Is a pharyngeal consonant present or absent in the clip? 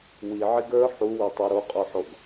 present